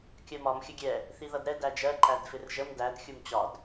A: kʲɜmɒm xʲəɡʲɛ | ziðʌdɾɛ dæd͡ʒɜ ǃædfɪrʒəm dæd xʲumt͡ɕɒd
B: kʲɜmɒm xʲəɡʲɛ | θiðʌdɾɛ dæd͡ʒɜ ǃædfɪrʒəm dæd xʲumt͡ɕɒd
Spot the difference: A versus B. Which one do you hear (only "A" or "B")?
B